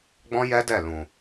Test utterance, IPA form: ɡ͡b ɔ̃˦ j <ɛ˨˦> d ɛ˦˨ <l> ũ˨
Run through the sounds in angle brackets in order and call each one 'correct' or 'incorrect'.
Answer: incorrect, correct

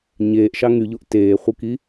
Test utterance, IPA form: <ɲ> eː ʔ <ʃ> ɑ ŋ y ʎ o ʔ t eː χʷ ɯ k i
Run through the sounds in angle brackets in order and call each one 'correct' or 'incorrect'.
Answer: correct, correct

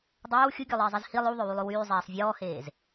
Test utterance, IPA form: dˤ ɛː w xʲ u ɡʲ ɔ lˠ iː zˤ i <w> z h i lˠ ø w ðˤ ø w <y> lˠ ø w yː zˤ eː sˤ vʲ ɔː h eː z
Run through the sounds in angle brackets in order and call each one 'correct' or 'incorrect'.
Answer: incorrect, correct

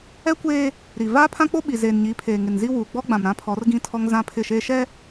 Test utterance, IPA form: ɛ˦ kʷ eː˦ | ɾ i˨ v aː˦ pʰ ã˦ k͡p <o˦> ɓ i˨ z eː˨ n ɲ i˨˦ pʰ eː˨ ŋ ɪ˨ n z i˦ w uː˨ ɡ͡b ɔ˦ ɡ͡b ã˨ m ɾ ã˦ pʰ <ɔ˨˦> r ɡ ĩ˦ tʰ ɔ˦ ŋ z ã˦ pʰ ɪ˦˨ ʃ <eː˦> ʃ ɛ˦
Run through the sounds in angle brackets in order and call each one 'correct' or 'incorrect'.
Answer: correct, correct, correct

